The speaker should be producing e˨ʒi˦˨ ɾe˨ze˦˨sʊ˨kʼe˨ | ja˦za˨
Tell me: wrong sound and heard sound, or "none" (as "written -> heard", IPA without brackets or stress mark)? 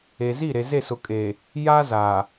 ʒ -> z